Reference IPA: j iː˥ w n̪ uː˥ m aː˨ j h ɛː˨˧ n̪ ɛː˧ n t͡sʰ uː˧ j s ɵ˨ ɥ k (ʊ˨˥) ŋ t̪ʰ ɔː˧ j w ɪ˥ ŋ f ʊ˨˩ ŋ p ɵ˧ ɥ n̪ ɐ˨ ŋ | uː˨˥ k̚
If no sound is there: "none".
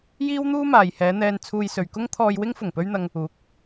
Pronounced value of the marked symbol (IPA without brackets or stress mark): ʊ˥